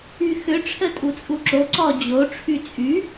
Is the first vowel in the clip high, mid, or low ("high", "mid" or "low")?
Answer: high